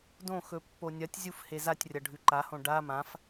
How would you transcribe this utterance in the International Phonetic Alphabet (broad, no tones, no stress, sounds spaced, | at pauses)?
d õ x ɵ pː o nʲ ɐ tʲ zʲ u f h e z a tʲ rʲ ɐ ɖʱ ʉ ǃ a h õ ɖ a m ã f